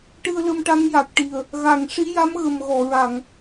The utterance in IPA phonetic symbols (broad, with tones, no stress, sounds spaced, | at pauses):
ʈ ɨ˧ ə̯ l ə˧ m ʈ a˧˥ ŋ j a˨˩ k̚ ʈ i˨˩ ə̯ | ɣ a˨˩˨ ŋ ʂ i˧˥ j a˧˥ m ɣ ə˨˩ m ɣ ɔ˨˩˨ ɹ a˨˩˨ ŋ